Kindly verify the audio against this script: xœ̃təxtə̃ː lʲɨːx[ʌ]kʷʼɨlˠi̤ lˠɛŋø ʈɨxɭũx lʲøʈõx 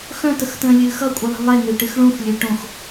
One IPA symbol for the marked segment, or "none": ʌ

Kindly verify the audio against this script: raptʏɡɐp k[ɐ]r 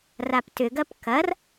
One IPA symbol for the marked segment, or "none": ɐ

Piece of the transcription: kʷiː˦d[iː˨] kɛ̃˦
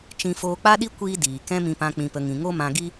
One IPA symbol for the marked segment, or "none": iː˨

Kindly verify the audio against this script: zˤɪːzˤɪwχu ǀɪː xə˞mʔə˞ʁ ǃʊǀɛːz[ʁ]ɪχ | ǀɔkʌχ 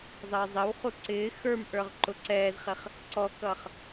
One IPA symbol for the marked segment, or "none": χ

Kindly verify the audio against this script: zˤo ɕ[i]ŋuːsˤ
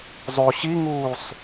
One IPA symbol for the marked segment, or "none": i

